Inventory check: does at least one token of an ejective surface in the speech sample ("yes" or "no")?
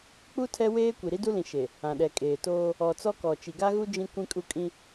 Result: yes